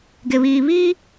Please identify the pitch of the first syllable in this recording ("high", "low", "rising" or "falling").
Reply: low